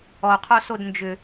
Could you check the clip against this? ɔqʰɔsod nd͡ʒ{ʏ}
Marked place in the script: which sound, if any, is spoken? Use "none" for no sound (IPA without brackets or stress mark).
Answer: ʏ